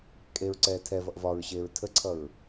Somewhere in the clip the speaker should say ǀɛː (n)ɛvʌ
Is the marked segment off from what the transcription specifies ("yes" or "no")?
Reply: yes